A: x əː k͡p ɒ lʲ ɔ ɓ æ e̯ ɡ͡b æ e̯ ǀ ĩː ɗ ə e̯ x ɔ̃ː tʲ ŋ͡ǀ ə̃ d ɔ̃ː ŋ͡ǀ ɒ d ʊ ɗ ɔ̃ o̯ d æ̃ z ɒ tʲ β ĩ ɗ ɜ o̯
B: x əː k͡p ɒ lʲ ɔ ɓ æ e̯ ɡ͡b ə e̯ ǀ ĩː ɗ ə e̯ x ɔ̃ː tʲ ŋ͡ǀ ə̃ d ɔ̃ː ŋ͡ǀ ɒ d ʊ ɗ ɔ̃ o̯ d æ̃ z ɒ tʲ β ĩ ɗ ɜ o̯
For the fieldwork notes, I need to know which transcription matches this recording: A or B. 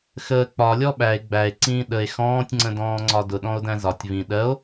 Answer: A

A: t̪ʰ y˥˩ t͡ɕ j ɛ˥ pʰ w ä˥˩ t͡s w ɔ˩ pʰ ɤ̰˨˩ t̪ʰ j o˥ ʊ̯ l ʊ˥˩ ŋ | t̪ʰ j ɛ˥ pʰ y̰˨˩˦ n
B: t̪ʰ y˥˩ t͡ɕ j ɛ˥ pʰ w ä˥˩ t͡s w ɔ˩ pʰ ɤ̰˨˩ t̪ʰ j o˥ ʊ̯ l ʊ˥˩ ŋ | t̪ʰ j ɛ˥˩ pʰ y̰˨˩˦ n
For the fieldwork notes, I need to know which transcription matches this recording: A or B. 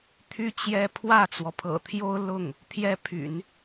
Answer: A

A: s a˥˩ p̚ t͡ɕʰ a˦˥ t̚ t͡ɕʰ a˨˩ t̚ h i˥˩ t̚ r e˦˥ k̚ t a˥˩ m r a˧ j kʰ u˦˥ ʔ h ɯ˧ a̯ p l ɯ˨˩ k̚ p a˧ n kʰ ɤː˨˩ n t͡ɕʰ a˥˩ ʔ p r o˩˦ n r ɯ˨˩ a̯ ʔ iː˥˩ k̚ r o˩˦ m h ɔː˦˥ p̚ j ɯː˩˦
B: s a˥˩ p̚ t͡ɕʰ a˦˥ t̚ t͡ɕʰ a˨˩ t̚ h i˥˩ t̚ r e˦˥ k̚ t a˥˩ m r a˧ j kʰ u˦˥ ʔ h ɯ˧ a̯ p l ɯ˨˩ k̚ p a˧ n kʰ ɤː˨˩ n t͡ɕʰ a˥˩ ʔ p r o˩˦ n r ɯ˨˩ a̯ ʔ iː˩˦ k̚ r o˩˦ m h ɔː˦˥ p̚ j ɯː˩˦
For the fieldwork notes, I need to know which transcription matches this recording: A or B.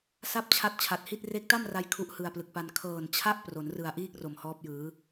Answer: A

